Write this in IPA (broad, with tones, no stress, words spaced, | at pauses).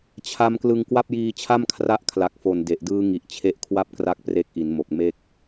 t͡ɕʰa˧m klɯ˧ŋkwa˥˩p̚ jiː˧t͡ɕʰa˥˩m kʰra˦˥ʔkʰla˨˩k̚fo˨˩n de˨˩ʔdɯː˦˥ ŋi˨˩ʔt͡ɕʰe˦˥ʔkʰwa˥˩p̚ kra˥˩k̚pre˦˥k̚ʔi˩˦nmo˨˩k̚ me˥˩k̚